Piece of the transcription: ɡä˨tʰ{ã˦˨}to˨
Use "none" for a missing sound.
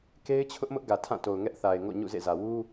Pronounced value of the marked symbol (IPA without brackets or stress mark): ã˦˨